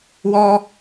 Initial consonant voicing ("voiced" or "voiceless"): voiced